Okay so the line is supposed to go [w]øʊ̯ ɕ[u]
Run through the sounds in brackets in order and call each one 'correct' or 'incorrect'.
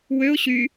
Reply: correct, incorrect: y

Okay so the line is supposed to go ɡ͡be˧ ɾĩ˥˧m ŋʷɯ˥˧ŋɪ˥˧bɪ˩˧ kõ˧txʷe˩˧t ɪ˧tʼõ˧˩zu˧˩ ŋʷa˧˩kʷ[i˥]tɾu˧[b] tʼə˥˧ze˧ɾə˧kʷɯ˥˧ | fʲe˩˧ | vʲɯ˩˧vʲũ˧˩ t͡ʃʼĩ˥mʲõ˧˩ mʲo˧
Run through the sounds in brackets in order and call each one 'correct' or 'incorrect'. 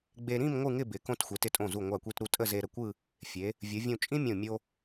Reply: incorrect: i˧, incorrect: none

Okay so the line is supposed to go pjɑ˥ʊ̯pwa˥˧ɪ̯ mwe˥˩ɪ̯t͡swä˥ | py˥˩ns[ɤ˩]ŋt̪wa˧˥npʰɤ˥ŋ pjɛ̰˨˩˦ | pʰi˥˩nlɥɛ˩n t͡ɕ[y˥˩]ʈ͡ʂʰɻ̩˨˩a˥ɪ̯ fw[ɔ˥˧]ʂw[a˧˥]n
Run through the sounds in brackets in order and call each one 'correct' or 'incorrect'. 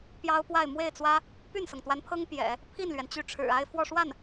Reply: correct, correct, correct, incorrect: a˥˩

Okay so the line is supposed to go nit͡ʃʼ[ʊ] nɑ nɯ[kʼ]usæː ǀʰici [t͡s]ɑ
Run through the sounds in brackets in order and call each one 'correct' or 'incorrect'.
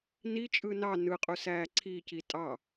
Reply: incorrect: ɯ, incorrect: qʼ, incorrect: tʼ

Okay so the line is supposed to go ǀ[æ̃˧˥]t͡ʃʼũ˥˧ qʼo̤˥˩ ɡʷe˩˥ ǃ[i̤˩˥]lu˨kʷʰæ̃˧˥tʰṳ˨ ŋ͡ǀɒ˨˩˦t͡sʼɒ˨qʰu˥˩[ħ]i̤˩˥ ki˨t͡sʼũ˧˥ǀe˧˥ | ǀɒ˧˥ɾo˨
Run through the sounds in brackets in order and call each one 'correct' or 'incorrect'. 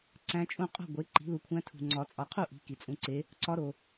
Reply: correct, correct, incorrect: ʔ

